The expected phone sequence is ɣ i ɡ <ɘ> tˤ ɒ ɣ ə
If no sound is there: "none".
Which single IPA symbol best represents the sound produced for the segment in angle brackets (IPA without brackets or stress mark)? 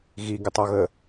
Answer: ɘ